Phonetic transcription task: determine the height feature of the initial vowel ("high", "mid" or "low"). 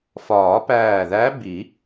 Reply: low